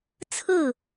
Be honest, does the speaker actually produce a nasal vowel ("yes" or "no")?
no